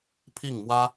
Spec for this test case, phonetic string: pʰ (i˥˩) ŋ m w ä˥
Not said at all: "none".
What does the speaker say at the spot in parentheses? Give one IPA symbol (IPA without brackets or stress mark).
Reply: i˥˩